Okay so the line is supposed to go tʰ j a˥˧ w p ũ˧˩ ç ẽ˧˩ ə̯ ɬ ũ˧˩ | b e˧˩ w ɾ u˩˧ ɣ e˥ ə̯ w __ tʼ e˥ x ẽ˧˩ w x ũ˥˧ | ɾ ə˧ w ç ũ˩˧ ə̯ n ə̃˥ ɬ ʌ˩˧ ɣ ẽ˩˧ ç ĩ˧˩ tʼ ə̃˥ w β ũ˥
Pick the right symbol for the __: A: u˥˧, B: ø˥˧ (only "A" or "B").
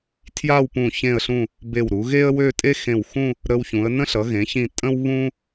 B